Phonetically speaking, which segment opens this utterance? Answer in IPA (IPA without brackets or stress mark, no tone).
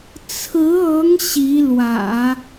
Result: t͡sʰ